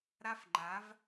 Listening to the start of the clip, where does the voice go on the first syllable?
high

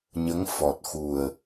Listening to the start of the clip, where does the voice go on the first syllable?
rising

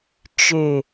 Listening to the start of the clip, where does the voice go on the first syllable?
low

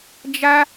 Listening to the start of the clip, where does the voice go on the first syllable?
high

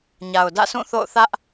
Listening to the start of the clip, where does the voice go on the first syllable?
low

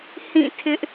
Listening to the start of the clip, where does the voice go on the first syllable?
falling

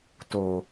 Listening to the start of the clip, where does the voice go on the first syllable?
low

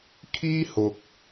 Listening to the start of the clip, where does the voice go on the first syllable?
high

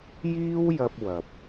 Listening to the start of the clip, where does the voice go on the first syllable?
high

